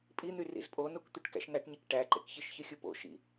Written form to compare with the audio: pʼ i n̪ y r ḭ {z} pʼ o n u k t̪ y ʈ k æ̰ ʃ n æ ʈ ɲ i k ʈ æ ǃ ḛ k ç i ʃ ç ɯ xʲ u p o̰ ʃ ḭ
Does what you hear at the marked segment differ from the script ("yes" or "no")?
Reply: no